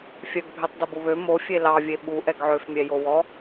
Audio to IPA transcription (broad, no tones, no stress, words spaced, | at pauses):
fʲœɡbʱøtˤdɑb oβø mo fʲelɑvʲe ɓu ʔɛɡʕøfmʲɛ jowɔ